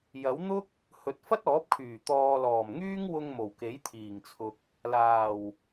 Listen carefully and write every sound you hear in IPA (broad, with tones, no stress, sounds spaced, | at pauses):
j ɐ˨˥ w n̪ ʊ˥ k̚ | h ɵ˨ t̚ f ɐ˥ t̚ ɔː˨˥ p̚ kʰ yː˨˩ t̪ ɔː˨ l ɔː˨˩ m ŋ yː˥ ŋ w ʊ˧ ŋ m o˨˩ w k e˨˥ j t̪ʰ iː˨˩ ŋ t͡sʰ ʊ˨ k̚ | l aː˨˩ w